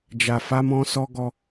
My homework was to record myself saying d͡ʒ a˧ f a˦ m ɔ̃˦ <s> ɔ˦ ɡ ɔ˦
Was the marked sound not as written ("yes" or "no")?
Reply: no